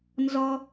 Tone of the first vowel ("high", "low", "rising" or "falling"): high